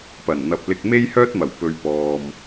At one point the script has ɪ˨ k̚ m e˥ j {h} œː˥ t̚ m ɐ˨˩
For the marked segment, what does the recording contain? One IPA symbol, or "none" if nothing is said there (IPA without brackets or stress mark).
h